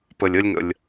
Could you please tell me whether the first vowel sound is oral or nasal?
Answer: oral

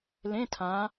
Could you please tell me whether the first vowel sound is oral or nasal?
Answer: nasal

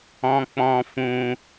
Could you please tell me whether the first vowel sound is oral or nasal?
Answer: nasal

